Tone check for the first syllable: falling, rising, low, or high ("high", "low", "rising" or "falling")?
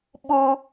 high